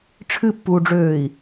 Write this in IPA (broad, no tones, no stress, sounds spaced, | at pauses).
ʈ͡ʂʰ ɨ pː uː ɖ͡ʐ øː i̯